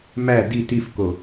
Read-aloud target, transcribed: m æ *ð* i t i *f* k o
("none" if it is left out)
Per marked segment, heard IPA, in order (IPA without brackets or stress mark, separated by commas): d, f